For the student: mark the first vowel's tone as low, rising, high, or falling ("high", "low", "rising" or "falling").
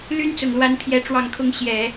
high